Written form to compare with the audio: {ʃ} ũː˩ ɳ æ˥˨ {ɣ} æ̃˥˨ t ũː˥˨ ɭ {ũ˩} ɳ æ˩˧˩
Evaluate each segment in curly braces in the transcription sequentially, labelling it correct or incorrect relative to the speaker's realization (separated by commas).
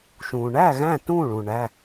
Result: correct, correct, correct